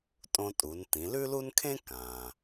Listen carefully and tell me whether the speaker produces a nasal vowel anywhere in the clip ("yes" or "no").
yes